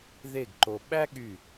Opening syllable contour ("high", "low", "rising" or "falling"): falling